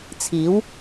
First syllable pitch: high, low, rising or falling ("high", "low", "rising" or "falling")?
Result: rising